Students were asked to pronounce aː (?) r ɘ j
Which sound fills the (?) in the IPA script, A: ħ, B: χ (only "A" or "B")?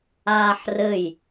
A